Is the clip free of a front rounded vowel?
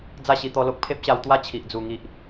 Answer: yes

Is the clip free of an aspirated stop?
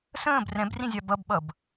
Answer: yes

